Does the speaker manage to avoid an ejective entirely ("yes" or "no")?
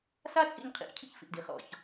no